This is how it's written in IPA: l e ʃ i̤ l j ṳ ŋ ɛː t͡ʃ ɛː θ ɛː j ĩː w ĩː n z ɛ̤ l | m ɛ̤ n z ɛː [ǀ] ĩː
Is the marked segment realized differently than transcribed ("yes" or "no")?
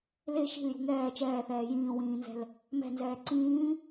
no